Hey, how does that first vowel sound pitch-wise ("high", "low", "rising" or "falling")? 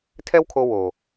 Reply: high